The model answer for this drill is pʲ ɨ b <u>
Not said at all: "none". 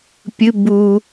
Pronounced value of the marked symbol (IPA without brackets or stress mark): u